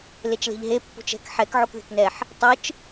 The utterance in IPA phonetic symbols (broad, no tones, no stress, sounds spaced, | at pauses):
l e t͡ʃ l e̤ ʎ ɦ e pː ṳ t͡ʃ ɛ̤ k ħ ɛ k ʕ o k ð e̤ k n ɛ ħ | tˤ ɯ t͡ʃ